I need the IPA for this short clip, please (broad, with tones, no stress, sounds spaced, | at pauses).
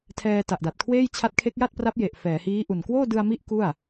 tʰ ɛː˧ t a˨˩ ʔ d a˨˩ t̚ kʰ w eː˥˩ j t͡ɕʰ a˦˥ t̚ kʰ e˦˥ k̚ j a˥˩ t̚ p r a˦˥ p̚ j e˨˩ ʔ f ɛː˩˦ h iː˦˥ ʔ u˨˩ n k w oː˥˩ d ɯ˧ a̯ m i˦˥ ʔ k u˥˩ a̯